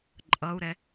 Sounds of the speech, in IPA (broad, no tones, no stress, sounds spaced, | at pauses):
ǃʼ ʌ u̯ ɾ ɛ